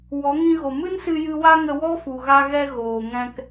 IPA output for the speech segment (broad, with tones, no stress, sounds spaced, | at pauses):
w ɔ˨˦ ŋ ĩ˧ ɣ o˨ m ɨ˦ n s ɨ˧ j ɨ˧ w a˦ ŋ ə˧ w ɔ˦ f u˨ ɣ a˦ ɣ ɛ˦ ɣ oː˨ ŋ ɛ̃˧ k